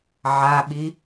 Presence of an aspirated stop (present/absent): absent